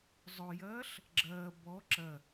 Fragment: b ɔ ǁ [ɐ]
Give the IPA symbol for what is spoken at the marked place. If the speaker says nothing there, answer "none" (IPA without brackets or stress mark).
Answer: ɐ